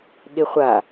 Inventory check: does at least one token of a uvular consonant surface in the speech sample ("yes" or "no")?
yes